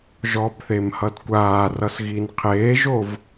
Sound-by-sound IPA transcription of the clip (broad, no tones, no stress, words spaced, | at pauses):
ʒɔbθemhʌd kʷaːrʌs ɣinqʰeːʒov